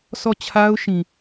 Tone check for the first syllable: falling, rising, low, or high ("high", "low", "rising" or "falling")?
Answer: falling